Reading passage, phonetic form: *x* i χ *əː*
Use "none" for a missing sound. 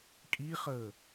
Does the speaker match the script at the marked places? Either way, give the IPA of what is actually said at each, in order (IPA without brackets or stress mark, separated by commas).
kʼ, əː